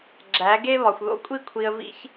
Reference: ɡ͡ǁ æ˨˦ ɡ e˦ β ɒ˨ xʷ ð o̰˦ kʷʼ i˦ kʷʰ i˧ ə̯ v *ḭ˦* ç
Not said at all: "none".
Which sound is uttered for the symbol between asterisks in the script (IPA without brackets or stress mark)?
ḭ˦